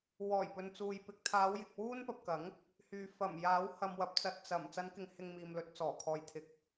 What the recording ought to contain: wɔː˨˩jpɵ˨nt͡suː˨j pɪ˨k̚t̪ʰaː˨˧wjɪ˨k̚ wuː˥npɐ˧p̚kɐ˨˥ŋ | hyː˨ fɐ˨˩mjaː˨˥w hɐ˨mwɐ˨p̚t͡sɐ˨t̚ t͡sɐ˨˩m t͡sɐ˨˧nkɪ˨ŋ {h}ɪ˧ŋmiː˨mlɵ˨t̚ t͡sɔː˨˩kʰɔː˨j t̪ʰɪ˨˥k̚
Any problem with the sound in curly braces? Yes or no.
no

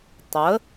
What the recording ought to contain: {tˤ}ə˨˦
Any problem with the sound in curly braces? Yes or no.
no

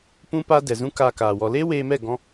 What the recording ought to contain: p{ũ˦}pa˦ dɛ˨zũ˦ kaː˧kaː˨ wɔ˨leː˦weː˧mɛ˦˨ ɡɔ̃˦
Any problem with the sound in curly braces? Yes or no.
no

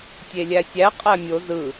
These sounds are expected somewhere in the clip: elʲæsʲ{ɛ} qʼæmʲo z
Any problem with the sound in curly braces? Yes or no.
yes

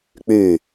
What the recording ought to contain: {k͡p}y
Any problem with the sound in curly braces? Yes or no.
no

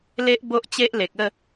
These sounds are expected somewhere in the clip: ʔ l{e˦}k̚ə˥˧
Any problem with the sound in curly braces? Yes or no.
yes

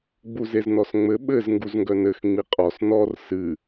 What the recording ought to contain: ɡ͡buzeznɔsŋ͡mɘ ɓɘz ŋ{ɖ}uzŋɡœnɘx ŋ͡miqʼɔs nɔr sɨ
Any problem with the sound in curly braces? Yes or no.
yes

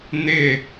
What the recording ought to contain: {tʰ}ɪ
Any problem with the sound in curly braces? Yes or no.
yes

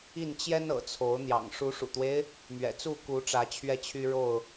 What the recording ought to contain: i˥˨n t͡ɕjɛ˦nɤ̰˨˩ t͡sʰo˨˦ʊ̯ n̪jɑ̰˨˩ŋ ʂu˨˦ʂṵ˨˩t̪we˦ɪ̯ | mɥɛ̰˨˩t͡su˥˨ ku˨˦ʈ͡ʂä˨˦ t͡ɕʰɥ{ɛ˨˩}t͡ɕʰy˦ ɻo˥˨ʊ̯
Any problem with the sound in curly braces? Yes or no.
yes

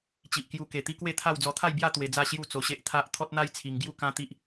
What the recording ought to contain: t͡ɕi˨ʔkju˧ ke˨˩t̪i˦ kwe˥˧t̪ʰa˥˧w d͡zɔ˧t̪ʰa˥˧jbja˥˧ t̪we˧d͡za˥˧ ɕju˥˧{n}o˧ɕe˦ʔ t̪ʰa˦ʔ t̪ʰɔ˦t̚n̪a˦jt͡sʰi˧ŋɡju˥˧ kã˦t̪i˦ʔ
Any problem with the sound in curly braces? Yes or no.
yes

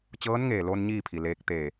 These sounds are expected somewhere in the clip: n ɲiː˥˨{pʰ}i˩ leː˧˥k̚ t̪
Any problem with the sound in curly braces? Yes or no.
no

